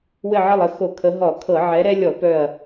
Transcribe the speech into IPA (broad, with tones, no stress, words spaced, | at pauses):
wɘ˧˩ʕə˧˩lˠə˧˩ xo˧˩˧kʰə˨˦ ɦɔ˧˩˧kʰɤ˧˩˧ ʕɛ˨˦ɾɛ˦lʲɔ˧˩˧ pœ˧˩ɐ̯